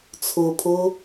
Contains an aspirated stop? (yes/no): yes